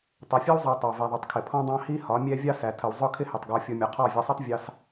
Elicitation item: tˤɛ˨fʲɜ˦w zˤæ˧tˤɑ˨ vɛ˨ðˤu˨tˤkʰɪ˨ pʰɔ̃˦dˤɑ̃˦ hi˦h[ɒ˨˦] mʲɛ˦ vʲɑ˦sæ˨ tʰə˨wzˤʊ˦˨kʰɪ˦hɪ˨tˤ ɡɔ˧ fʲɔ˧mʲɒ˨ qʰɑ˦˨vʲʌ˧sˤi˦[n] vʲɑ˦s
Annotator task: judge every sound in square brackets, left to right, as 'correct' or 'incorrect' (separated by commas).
correct, incorrect